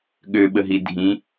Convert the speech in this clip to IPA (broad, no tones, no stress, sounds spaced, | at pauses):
ɠ ø ɓ ə ɦ i dʱ ĩ